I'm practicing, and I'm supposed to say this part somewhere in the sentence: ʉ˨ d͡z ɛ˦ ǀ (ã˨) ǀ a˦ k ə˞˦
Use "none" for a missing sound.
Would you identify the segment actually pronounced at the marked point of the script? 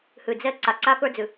a˨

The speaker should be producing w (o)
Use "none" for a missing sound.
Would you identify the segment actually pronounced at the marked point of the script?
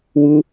u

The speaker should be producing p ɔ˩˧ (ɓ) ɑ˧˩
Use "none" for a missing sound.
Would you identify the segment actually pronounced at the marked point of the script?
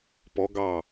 ɡ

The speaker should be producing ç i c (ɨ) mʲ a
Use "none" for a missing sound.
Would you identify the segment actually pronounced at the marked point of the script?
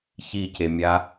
e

